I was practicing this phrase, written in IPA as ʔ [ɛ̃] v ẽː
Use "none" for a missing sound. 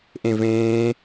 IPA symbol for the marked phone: ẽ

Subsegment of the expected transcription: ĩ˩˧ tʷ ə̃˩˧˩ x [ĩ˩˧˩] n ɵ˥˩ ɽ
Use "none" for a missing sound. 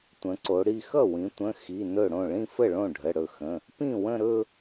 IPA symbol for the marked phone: i˩˧˩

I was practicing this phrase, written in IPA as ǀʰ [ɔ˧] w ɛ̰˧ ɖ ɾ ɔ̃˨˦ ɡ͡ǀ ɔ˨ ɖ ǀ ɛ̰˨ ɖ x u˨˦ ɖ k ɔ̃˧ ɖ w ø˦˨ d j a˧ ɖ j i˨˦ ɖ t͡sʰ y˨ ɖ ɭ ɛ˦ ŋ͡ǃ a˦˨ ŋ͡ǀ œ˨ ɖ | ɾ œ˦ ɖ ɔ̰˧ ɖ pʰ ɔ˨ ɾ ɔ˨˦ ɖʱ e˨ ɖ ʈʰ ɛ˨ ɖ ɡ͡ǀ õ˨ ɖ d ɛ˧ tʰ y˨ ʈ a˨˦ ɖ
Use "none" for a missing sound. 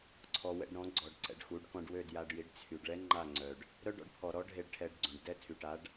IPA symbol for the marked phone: ɔ˨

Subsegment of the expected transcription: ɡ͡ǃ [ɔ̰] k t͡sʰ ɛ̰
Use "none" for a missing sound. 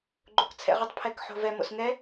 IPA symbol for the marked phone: o̰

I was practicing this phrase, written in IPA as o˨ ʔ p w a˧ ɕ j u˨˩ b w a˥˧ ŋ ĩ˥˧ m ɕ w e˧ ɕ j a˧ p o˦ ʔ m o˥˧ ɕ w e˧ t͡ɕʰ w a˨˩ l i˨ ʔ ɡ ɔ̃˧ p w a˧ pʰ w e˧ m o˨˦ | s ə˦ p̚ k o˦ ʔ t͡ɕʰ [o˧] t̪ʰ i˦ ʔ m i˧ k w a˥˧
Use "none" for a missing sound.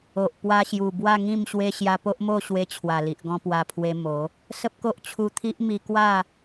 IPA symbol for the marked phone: u˧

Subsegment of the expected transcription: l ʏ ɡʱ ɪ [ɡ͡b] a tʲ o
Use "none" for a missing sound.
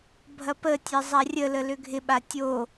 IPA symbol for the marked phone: ɓ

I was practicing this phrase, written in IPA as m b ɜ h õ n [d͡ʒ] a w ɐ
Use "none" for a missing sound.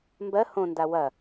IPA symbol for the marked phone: d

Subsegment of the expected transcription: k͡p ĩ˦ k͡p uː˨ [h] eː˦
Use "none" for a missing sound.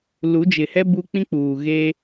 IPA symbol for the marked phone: ɣ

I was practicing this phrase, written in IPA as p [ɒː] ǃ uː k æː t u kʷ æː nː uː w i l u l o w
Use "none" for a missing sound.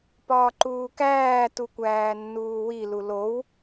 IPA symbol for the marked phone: ɒː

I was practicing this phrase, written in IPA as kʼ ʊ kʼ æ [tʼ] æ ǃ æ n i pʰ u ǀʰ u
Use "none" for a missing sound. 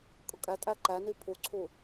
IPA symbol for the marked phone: tʼ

